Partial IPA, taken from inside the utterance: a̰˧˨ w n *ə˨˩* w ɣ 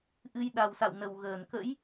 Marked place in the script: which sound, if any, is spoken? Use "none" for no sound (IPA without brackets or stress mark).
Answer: ə˨˩